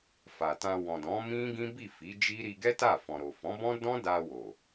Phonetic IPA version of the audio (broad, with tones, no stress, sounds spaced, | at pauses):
f a˨ t ã˧ w ɔ̃˨ d ɔ̃˨˦ m ĩ˦ ɡ ĩ˦ b i˦˨ f i˨˦ d͡ʒ i˦ ɾ i˧ ɡ ɛ˦ t a˦˨ f ɔ̃˨ ɾ o˨ f ɔ̃˨˦ b ɔ̃˦ d ɔ̃˦ d a˧ w o˨